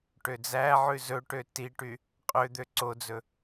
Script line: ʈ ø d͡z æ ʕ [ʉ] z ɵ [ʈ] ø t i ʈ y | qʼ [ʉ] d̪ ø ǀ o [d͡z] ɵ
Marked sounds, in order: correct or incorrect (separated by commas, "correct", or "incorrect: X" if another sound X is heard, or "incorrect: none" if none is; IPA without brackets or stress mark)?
correct, correct, incorrect: ø, correct